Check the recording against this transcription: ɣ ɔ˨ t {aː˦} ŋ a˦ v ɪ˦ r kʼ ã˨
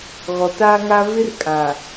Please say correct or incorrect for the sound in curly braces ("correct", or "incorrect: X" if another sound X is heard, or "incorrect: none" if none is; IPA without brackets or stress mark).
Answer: correct